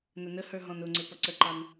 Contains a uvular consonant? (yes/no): no